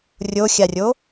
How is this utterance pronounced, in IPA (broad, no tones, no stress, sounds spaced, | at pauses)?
rʲ o xʲ a rʲ o